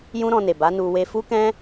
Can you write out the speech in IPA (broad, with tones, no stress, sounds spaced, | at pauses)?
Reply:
j ũ˦ ɾ ɔ̃˧ n e˨ b a˨˦ n u˧ w e˧ f u˦ k ɛ̃˦